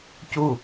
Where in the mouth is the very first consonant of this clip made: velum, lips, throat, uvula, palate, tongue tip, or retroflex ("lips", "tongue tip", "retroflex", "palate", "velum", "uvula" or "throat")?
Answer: palate